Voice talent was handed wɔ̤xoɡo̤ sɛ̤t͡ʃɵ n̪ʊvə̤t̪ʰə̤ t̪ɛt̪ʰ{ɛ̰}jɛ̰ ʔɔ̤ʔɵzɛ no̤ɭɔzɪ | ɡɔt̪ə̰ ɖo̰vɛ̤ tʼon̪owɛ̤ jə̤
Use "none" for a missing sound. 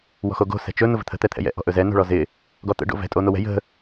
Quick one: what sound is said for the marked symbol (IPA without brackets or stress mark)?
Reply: ɛ̰